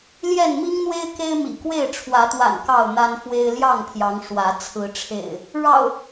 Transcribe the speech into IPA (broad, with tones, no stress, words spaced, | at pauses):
ljɛ˥˨n mi˦ŋn̪we˦ɪ̯ ke˦ɪ̯mḭ˨˩kwe˥˨ɪ̯ ʈ͡ʂʰwä˨˦t̪wa̰˨˩n kɑ˥˨ʊ̯n̪a˦nfwe˦ɪ̯ ljɑ˥˨ŋpʰjɑ˨˦ŋ ʂwä˨˦ t͡sʰɹ̩˨˦ʈ͡ʂʰḛ˨˩ɪ̯ | ɻɑ̰˨˩ʊ̯